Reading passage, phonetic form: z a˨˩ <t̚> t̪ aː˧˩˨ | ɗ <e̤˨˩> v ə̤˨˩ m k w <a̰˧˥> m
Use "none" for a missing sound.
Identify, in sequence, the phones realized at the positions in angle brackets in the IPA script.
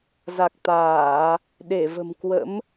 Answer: k̚, e˧˩, ə̰˧˥

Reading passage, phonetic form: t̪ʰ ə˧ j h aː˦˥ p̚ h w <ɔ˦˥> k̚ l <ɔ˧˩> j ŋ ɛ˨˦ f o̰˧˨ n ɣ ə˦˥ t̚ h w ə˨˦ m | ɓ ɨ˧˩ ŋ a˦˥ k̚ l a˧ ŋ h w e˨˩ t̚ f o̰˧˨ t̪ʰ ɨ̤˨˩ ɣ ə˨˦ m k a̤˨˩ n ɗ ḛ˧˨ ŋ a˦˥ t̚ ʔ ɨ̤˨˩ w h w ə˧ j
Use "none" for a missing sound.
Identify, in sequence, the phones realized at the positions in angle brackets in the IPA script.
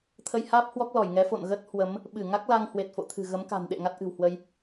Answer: ɔ˦˥, ɔ˧˩

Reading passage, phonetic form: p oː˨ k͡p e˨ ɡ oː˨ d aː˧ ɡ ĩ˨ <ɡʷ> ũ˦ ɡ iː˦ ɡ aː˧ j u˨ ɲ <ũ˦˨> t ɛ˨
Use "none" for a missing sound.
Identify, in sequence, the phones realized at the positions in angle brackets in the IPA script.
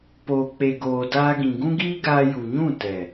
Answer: ɡ, ũ˦˨

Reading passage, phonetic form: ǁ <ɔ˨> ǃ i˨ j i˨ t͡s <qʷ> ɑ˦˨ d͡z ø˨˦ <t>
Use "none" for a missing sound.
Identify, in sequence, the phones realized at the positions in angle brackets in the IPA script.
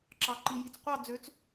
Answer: ɑ˨, qʷ, t͡s

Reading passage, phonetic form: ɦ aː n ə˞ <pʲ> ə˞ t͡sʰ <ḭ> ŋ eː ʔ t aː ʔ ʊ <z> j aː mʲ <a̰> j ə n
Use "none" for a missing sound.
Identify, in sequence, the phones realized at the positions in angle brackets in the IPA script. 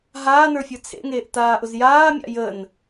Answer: fʲ, ḛ, z, a̰

